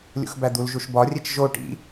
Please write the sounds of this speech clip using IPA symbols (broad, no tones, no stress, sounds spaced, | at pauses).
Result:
lʲ ṵ x b æ d̪ u l ʒ u ʃ b ɒ rʲ e t͡ʃ ʒ o ʈ ḭ